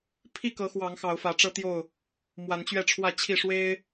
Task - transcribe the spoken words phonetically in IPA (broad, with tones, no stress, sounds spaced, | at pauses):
pʰ i˥˨ k ɤ˨˦ x w ɑ˨˦ ŋ x ɑ˨˦ ʊ̯ f ä˨˦ ʈ͡ʂ ɤ˦ t̪ j o˥˨ ʊ̯ | m w a˨˦ n t͡ɕ ɥ ɛ˥˨ ʈ͡ʂʰ w ä˥˨ t͡ɕʰ i˥˨ ʂ w e˦ ɪ̯